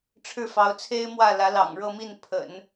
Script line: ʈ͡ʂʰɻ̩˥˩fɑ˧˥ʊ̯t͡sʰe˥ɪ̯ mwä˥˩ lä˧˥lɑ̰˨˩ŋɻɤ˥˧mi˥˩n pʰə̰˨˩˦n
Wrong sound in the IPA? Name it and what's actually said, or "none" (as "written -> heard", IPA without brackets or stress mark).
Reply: none